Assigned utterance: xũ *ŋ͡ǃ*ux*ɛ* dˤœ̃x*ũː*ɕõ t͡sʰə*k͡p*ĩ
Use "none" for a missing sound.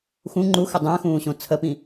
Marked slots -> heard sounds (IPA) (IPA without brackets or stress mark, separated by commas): ŋ͡ǃ, ə, ũː, p